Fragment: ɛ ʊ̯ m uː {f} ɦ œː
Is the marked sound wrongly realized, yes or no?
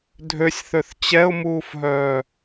no